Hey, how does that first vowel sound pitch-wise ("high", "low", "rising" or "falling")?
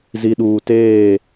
low